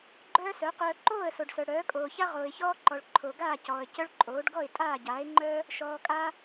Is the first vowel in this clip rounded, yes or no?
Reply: yes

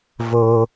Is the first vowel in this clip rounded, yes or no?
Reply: yes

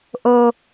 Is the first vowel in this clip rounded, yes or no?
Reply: yes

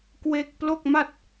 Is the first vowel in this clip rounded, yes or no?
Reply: no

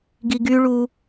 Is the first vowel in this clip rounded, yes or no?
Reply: no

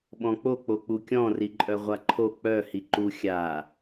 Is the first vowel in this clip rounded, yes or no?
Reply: yes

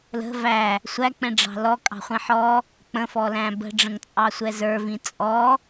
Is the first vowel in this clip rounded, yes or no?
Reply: no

